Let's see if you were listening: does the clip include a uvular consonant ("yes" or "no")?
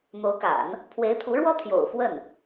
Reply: no